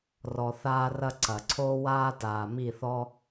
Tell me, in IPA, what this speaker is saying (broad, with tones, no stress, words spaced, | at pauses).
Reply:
rɔ˧θaː˦ rɐ˦ ǀɐ˨ ǀʰoː˦waː˦taː˨ mi˦˨θɔ˦